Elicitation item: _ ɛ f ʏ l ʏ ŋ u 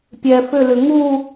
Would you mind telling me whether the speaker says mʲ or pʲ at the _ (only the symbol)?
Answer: pʲ